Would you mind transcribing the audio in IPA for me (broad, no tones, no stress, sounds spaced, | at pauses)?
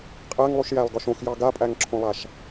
qʼ æ ŋ lˠ u ʃ j æ lˠ ɡ ɒ ʃ õ x j ɑ ɡ a pʼ æ ŋ ǁʰ õ lˠ a ʃ